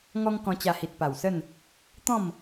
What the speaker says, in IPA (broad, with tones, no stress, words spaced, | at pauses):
ŋɔ˦ŋkɔ̃˧t͡ɕa˧hi˨t̚ pa˨˩wsə˥˧n | t̪ɔ̃˥˧m